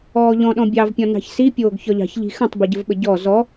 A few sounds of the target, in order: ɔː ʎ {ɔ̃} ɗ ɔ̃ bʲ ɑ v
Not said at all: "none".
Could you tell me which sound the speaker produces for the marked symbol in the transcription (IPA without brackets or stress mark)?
ɔ̃